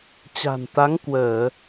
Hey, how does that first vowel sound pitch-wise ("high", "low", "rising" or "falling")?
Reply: low